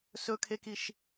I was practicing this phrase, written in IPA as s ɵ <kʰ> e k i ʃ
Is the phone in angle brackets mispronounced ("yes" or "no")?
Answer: no